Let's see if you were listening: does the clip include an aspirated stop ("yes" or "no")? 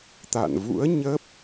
no